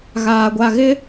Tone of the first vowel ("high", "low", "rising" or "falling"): low